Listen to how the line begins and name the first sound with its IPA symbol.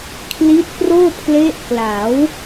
kʰ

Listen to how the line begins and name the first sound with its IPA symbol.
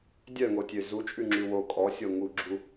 dʲ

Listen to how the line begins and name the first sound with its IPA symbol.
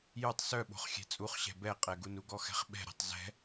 j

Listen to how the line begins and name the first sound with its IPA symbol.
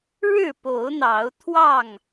ɻ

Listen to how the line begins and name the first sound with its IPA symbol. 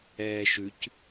ɛː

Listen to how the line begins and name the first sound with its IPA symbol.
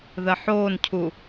ð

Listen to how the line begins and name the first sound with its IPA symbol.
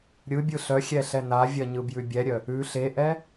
ɾʲ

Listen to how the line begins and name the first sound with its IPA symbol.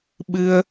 ɓ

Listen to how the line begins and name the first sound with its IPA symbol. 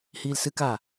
h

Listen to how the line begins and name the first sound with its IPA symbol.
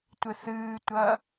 tʷ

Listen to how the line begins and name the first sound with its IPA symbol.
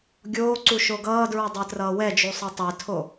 ɡʲ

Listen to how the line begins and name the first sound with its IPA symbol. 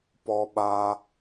p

